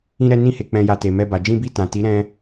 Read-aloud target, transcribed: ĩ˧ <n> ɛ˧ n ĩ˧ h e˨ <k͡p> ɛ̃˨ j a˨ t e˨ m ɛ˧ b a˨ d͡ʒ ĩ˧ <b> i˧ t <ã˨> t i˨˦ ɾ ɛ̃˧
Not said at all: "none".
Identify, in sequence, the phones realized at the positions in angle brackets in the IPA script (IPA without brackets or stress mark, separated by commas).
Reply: ɾ, k͡p, b, ã˨